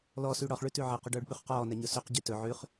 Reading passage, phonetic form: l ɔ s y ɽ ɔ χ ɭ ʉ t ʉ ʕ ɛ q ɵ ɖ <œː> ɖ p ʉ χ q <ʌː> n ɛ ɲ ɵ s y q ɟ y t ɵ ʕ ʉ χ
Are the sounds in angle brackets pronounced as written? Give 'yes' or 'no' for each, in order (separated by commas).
yes, no